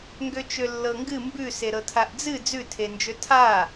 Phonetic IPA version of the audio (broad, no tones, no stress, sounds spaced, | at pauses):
ŋ ɡ ø t͡ʃ ø lː ɤ ŋ ɡ ɨ m b ʉ s e ɾ ɤ tʰ a ʔ d͡z ɨ d͡z ʉ tʰ e n d͡ʒ ø tʰ a